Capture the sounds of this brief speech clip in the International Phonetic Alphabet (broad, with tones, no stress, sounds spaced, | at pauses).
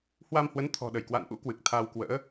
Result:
h w a˧ m h w ə˨˦ n t̪ʰ ɔ̤˨˩ ɗ ə˧˩ j k w a̰˧˨ n ʔ ṵ˧˥ k w ɨ˨˩ k̚ t̪ʰ a˧ w k w ə̰ː˧˥